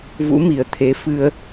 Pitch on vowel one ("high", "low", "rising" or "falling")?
rising